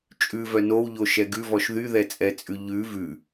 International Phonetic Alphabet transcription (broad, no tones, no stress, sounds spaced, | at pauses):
t͡ʃʼ ʉ v œ n o w ʎ o ʃ ɛ ɡ ʉ v ɔ ʃ ð y ð ɛ t͡sʼ ɛ t͡sʼ ʉ ʎ ʉ v ʉ